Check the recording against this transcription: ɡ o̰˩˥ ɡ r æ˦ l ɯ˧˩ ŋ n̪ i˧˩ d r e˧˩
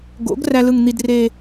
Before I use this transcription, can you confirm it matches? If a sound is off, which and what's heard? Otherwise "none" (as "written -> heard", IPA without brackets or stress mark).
none